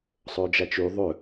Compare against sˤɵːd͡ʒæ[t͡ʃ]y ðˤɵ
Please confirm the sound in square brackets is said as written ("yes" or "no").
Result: yes